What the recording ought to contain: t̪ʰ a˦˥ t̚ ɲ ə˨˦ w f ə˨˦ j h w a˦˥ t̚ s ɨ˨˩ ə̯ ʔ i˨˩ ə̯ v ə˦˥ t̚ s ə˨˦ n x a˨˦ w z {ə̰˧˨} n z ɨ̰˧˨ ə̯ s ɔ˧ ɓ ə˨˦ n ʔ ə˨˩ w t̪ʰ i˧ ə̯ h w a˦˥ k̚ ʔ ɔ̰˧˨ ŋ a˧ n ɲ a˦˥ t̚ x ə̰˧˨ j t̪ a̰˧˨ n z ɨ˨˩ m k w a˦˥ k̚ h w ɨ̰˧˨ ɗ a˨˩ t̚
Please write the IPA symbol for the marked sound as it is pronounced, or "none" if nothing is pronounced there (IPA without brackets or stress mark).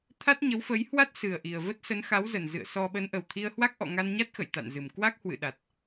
ə˨˩